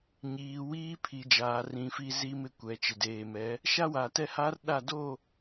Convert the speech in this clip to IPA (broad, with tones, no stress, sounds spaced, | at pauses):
ɲ iː˨ w iː˦ pʰ i˨ d͡ʒ aː˨ r ĩ˨ f i˦ z i˦ m ɪ˦ kʷ ɛ˨ t͡ʃ ɪ˨ d eː˨ m ɛ˨˦ | ʃ a˦ w a˨ t ɛ˦ h a˦ r ɗ a˦˨ d o˦˨